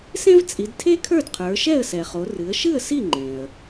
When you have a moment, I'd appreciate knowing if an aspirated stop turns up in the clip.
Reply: yes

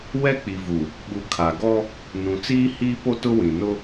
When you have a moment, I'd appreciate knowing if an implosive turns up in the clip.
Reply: yes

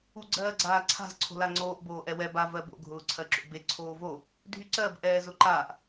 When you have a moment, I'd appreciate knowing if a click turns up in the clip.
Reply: yes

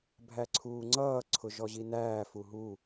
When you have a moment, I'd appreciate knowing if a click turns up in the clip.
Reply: yes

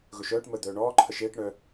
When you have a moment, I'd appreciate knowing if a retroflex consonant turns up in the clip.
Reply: yes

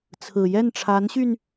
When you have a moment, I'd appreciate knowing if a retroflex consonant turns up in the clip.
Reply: yes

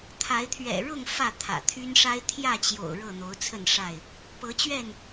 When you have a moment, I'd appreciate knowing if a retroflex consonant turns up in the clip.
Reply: yes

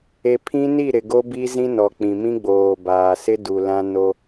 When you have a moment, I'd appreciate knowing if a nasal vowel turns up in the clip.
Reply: yes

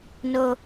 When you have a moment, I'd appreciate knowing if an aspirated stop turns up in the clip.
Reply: no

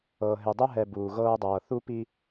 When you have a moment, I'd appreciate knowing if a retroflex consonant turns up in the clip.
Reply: no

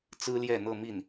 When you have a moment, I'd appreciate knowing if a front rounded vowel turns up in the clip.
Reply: no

